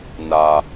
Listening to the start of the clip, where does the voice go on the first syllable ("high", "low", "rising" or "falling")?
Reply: low